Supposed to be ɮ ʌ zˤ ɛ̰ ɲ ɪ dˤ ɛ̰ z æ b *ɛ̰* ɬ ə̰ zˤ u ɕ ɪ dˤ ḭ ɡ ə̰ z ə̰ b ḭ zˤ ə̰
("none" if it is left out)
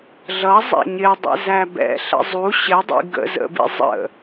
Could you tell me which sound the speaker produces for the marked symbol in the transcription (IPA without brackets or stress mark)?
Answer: ɛ̰